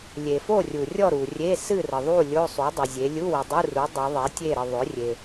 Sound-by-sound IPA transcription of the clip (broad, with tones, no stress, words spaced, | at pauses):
lʲe˩fo˥˨rʲu˩rʲɔ˥˨ ɾu˩rʲe˧˥˧ sɨ˥˨rə˩ðˤu˥˨ lʲo˧˥˧sˤu˩˥ dˤɨ˩zʲe˩˧ lʲu˧˥˧wɨ˩dˤu˧˥˧ru˩˥ dˤɨ˩˧ ðˤe˩˥tʲe˥˨ɾə˥˨ ðˤʏ˩˥rʲe˩